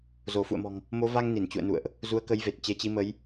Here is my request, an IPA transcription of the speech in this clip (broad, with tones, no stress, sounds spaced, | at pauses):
z o˧˩ f ṵ˧˨ ə̯ m ɔ̤˨˩ ŋ | m o˨˦ v a˧ ŋ n i˧˩ n t͡ɕ ṵ˧˨ ə̯ n ṵ˧˨ ə̯ ʔ | z u˨˦ ə̯ k ə˨˦ j v e˨˩ t̚ t͡ɕ e˨˦ t͡ɕ i˨˦ m ə˨˦ j